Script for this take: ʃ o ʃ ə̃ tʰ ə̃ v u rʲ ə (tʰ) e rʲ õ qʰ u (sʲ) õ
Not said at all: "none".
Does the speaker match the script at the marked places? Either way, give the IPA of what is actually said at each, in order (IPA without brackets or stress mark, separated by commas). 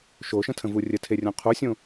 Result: tʰ, sʲ